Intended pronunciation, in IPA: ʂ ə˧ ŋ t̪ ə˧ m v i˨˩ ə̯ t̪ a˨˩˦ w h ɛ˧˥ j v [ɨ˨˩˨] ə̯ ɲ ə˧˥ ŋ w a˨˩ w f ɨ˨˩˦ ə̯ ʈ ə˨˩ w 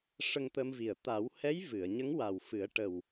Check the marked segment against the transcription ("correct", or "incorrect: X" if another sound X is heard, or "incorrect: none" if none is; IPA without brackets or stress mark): correct